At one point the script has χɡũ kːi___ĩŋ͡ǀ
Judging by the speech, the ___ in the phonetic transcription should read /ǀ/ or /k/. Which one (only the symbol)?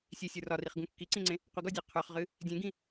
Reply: ǀ